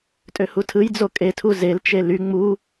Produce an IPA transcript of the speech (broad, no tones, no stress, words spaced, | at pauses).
tʼøhutʰɯjd͡zo kʼetʰu zelt͡ʃe ly ŋ͡mu